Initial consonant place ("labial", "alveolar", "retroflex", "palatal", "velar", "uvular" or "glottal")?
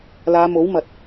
alveolar